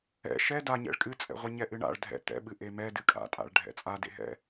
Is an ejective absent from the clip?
no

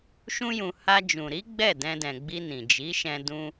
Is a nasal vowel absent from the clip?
no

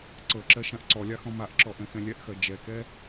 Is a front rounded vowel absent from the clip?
yes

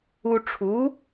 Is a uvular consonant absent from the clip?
yes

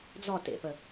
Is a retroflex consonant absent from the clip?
yes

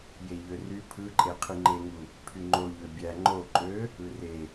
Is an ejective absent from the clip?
no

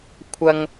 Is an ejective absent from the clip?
yes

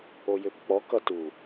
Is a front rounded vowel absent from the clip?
no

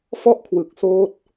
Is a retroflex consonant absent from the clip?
yes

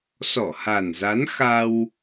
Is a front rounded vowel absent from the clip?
yes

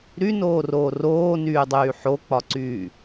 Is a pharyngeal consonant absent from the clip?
no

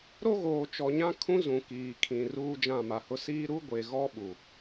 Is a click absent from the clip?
yes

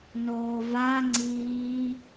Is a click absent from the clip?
no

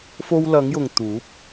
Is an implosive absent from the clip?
yes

